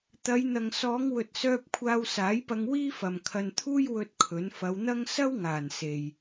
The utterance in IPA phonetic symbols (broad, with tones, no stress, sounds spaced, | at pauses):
t̪ ɐ˨˧ j n̪ ɐ˨ ŋ s ɔː˨˧ ŋ w ɵ˨ t̚ s œː˧ p̚ kʷʰ aː˧ w s aː˨˥ j p ɐ˧ ŋ w iː˥ f ɐ˨ m kʰ ɐ˧ n t̪ʰ uː˥ j w ɵ˥ t̚ kʰ ɵ˨˥ n f ɐ˨˧ w n̪ ɐ˥ ŋ s ɐ˥ w ŋ aː˨˩ n s e˨ j